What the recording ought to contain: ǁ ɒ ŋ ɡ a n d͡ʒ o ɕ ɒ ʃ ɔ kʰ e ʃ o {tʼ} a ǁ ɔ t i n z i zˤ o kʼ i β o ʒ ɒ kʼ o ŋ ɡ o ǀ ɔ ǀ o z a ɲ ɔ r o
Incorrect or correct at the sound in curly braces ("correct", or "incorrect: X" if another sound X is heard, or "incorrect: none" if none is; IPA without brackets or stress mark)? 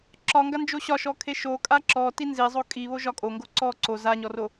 incorrect: kʼ